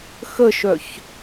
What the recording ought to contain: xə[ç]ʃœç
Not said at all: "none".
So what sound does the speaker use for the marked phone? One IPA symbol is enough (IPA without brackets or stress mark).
none